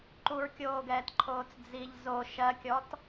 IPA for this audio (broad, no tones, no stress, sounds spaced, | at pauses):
ǃ u ɹ kʲ oː ɡ ɛː t ǃʰ oː t͡s d͡z i ʎ z o ʃ ɜ kʲ ɔ t